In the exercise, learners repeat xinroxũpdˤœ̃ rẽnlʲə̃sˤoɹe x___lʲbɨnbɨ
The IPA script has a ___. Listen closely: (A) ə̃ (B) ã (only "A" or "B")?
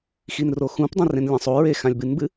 B